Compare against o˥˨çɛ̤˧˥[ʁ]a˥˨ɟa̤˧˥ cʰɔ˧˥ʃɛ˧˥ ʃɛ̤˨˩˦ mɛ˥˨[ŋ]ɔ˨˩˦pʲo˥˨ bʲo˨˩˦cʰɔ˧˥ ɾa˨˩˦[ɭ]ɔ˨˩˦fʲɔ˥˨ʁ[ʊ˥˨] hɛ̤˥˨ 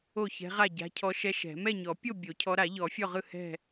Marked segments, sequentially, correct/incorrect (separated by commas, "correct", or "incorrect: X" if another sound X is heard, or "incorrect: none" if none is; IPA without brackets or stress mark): correct, incorrect: ɲ, incorrect: ʎ, incorrect: ɯ˥˨